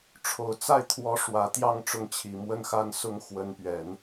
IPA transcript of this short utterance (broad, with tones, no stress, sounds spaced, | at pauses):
ʈ͡ʂʰ o˨˩ ʊ̯ t͡s a˥˩ ɪ̯ t̪ʰ w ɔ˧˥ ʂ w ä˨˩ t̪ j ɑ˥˧ ŋ ʈ͡ʂ ʊ˥˩ ŋ t͡ɕʰ i˨˩ m w ə˥ n x a˥ n s ʊ˥ ŋ x w ə˧˥ n p ɥ ɛ˨˩˦ n